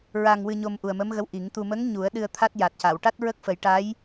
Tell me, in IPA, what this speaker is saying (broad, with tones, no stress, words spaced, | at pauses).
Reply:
ɹa˧ŋwɨ˧ɲo˧m ʔu˨˩ə̯mə˧˥mɣə˧˥w ʔi˨˩˦ŋt̪u˧ mə˧˥ŋ ɲu˨˩˦ə̯ ɗɨ˧ə̯t̪ʰa˦˥t̚ ja˨˩t̚ca˨˩˨w ʈa˦˥t̚ɹə˦˥k̚fə˨˩˦jʈa˧˥j